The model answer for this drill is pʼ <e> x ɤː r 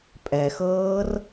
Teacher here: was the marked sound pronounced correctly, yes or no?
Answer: no